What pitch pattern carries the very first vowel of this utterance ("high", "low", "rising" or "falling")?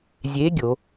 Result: rising